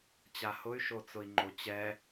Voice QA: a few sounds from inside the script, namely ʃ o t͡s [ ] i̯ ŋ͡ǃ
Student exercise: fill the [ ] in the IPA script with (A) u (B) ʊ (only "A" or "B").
B